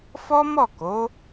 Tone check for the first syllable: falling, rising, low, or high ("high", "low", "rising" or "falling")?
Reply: high